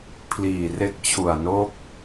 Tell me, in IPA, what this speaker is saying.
pʰ l iː˨˩ r e˦˥ k̚ t͡ɕʰ u˨˩ a̯ n o˥˩ k̚

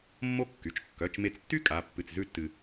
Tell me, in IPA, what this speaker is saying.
mː o˥ kː y˩˧˩ t͡ʃ kː œ˩˧˩ t͡ʃ m e˧ t͡s tː y˥ kʼ a˩˧˩ pː ɨ˧˩ t͡s z ʉ˥˧ tː ɨ˧

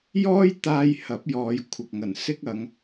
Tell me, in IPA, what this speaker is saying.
j ɔː˥ j t̪ aː˧ j h ɐ˨˥ p̚ j ɔː˨˧ j kʷʰ ɐ˨ k̚ ŋ ɐ˨˩ n s ɪ˥ k̚ ɐ˨˧ ŋ

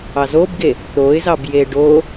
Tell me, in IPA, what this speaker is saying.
ɑ z o b ɡ e | t̪ o ɪ̯ z ɑ b j e ɖ o

